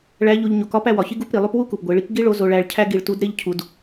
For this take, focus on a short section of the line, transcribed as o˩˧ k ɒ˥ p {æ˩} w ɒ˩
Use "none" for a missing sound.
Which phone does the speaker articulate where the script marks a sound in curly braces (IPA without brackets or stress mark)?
æ˧